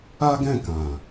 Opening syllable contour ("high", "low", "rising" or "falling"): high